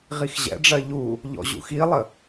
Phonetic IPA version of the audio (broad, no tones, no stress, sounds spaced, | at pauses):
ʁ i x ʑ ɛ̰ ɖ͡ʐ ɜ ʎ u | ʎ ɔ̰ ʑ ṵ x i lˠ ə